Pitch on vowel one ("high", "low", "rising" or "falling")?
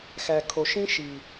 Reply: low